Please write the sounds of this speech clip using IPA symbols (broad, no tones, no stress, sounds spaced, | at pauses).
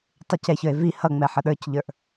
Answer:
tˤ ɪ c ɛ ç ə˞ e̯ v i h ʌ ŋ͡m ɛ ħ ə ɗ ə˞ c ʎ ə˞ ʔ